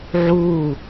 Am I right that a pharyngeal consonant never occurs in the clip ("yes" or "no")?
no